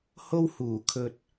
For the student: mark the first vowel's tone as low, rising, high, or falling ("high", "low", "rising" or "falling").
high